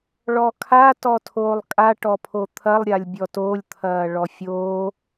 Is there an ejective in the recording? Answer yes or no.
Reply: yes